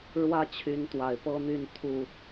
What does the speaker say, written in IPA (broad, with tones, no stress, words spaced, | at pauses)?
ɻwä˦t͡ɕʰy˨˦nt̪wa˨˩ɪ̯ pɤ˦n̪y˥˨n t̪ʰu˥˨